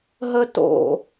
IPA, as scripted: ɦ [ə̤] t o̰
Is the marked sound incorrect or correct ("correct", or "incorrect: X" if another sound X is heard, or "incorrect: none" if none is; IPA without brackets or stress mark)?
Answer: incorrect: ə